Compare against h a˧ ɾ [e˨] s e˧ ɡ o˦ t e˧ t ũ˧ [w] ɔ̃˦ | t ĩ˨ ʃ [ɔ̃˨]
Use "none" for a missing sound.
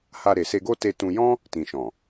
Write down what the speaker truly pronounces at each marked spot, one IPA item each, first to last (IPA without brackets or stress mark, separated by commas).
e˨, j, ɔ̃˨